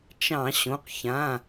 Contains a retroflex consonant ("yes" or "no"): no